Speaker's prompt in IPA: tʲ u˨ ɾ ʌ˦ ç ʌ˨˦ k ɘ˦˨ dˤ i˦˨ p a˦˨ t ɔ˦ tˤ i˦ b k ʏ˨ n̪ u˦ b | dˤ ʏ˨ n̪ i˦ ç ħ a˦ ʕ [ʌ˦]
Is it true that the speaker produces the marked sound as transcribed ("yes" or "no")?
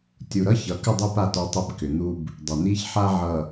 no